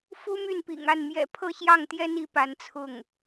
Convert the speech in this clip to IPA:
f u˥ m y˥˩ n p ḭ˨˩ ŋ a˥˩ n m j ɛ̰˨˩ pʰ ɤ˥˧ ɕ j ɑ˥˩ ŋ t̪ j ɛ˥ n i˧˥ p a˧˥ n t͡sʰ ʊ˥˩ ŋ

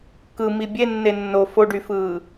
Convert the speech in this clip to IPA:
k ɯ m i bʲ e nː e nː o f o ɖ y f ɯː

